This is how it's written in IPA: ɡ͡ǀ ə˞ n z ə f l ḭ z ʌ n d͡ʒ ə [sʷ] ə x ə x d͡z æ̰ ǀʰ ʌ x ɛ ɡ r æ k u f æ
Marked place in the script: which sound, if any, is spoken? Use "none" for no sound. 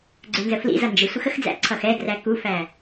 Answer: sʷ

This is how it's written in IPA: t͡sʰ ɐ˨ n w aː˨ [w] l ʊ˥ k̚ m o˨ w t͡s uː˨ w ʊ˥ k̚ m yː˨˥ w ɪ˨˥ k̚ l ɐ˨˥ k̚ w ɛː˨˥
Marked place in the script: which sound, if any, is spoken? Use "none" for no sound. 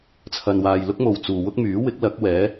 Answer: j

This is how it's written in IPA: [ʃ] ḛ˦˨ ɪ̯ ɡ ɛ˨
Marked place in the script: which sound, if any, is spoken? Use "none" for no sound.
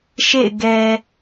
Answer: ʃ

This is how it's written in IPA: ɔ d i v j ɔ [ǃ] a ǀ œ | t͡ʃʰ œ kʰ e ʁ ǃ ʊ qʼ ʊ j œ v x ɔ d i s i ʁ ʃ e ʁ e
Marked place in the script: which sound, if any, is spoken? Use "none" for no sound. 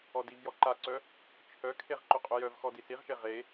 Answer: ǃ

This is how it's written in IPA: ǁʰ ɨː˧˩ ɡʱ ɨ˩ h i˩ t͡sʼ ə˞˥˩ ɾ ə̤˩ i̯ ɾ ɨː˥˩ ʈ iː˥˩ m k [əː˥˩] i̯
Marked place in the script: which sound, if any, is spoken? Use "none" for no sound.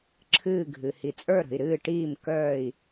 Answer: œː˥˩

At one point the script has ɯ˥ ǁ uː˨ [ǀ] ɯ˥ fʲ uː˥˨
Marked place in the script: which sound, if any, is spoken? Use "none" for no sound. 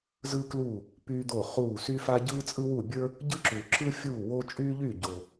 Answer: ǁ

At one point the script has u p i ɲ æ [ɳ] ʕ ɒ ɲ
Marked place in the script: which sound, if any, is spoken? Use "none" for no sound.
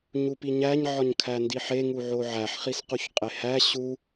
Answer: ɲ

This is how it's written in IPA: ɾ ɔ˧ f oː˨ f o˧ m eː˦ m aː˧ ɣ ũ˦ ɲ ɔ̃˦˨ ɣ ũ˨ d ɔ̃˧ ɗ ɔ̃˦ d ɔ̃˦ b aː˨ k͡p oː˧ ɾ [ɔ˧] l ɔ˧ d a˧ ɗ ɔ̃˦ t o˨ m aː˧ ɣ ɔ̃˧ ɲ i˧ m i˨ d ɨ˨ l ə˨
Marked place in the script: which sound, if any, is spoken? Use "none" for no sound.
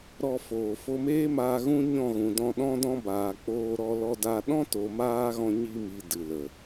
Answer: ɔ˧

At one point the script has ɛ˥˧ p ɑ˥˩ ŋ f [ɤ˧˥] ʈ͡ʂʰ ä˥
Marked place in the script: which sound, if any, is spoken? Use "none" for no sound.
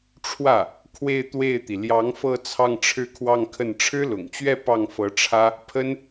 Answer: ɤ˧˥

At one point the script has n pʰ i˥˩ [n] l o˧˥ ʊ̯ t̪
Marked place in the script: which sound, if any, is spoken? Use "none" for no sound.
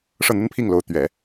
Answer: ŋ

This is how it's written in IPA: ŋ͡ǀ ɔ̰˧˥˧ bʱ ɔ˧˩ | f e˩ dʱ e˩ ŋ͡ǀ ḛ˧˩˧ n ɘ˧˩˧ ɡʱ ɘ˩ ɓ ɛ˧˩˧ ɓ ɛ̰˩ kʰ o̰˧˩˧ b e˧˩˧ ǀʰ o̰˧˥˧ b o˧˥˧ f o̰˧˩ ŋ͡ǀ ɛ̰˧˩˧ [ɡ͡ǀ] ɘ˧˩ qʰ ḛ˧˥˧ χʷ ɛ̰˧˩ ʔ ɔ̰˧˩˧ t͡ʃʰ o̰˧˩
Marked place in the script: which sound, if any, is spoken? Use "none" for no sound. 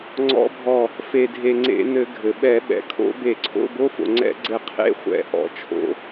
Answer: ɡ͡ǀ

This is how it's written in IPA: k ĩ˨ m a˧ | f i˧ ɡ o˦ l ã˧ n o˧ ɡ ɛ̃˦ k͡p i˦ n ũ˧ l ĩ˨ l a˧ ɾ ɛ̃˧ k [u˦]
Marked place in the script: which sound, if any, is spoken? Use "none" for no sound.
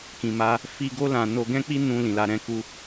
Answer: u˦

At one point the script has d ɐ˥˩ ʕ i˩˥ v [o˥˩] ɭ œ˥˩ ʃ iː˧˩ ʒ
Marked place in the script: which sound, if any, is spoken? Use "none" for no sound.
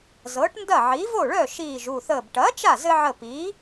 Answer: o˥˩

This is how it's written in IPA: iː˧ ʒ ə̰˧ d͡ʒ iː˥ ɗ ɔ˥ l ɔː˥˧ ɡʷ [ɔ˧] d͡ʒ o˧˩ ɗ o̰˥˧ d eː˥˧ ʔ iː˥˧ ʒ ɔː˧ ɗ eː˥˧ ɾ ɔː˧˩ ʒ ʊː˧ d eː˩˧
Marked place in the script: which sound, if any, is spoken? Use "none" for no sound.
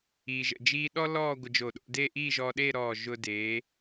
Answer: ə˧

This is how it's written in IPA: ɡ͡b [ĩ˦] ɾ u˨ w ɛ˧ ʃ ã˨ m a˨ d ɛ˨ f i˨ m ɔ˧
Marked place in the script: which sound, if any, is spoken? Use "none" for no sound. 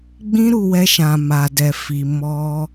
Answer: ĩ˧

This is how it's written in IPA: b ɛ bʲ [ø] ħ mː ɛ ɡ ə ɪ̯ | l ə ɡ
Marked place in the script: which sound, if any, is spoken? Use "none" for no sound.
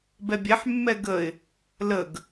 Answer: ɛ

